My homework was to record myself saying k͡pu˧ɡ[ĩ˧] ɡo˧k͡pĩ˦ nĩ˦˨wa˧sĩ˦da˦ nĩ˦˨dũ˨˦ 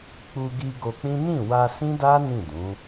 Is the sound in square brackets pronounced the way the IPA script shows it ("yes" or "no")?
no